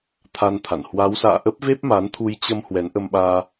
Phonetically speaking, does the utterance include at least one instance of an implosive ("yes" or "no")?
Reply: yes